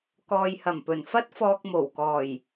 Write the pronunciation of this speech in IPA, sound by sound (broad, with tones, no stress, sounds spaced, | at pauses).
k ɔː˨ j h ɐ˨˩ m p ɵ˨˩ n f ɐ˥ t̚ f ɔː˧ k̚ m o˨˩ w k ɔː˨˩ j